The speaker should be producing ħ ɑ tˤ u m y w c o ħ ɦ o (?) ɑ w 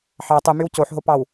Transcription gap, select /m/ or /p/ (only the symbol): p